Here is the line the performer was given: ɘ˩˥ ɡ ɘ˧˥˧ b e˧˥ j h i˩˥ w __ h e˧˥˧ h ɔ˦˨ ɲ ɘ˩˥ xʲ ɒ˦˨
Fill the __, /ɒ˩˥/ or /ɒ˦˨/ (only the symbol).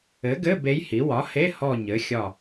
ɒ˩˥